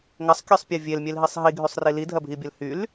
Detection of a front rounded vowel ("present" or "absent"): present